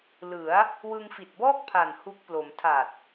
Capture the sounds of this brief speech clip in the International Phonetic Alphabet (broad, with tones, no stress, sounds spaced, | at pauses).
l ɯ˩˦ a̯ | w ɯ˧ ŋ f i˨˩ t̚ b ɔː˥˩ k̚ pʰ a˨˩ n h u˦˥ k̚ p l o˩˦ m tʰ a˨˩ t̚